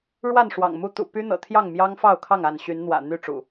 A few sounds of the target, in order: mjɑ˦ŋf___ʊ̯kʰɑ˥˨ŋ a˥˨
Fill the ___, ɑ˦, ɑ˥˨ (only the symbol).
ɑ˥˨